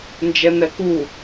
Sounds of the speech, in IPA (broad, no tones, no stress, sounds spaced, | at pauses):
n d͡ʒ ɛ n ɛ k u